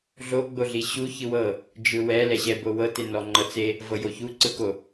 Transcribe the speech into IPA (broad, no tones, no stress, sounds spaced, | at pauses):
ɮ o ɡ͡b o ɮ i ɕ u ç ɯ w ɤ | d͡ʒ ɯ w ɛ l ɛ ɕ ɛ b o w ɤ t e n ɔ ŋ͡ǃ ɤ t͡s e | v ɤ j o ç u ǀ ɯ k o